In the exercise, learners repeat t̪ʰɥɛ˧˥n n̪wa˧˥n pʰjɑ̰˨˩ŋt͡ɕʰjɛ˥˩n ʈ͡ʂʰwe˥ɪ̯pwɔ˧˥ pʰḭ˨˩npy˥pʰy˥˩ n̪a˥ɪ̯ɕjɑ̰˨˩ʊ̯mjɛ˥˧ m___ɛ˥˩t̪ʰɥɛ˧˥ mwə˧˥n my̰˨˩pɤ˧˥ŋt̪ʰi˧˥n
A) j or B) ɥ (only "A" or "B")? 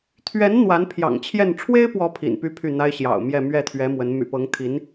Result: B